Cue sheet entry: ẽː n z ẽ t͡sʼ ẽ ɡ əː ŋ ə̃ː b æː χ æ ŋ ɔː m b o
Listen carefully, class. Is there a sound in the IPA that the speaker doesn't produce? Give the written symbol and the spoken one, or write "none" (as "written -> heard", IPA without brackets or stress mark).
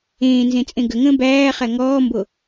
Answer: əː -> ə